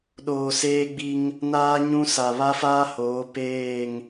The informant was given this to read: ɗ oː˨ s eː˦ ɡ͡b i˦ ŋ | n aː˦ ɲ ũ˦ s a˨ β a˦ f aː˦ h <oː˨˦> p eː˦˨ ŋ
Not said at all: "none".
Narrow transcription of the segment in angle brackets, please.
oː˨˦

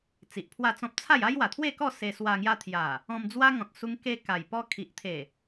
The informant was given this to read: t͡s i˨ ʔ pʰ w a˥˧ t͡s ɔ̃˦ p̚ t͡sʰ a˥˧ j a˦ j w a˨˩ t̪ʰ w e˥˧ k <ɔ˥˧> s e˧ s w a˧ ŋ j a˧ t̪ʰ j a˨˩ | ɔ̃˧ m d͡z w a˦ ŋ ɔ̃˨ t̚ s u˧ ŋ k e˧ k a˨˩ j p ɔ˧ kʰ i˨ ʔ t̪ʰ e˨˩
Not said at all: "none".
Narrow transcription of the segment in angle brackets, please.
ɔ˥˧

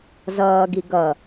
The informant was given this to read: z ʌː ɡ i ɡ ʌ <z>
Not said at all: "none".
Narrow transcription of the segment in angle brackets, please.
none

